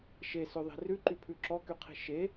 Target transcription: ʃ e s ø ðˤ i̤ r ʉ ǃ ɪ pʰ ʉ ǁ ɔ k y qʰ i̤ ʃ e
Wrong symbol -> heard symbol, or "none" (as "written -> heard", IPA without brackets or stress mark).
ɪ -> y